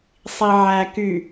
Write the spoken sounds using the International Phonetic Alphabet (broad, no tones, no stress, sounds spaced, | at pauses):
sˤ i ʕ æ k y